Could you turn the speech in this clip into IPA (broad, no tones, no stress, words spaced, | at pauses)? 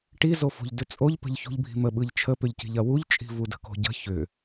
ʈizofo̤ʎ dʏt͡sʼoʎpə̤ʎ çṳʎbʱi̤mə ɓɯʎt͡ʃʰəpʏʎci̤ʎ ɐwuʎt͡ʃʼi̤ vudə̤ko̤ɟə̤ çʏ